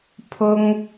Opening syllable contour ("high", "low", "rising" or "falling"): high